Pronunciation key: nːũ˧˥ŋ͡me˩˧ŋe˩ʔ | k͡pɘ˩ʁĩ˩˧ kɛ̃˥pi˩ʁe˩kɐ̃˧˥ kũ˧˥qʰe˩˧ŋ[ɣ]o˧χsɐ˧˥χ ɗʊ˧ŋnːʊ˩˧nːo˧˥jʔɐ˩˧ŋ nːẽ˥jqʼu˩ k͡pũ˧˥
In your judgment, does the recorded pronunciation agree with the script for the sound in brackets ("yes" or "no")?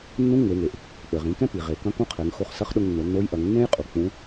no